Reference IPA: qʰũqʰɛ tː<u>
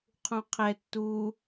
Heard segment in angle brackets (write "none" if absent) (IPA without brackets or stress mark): u